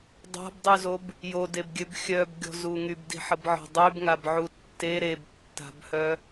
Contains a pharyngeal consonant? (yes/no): yes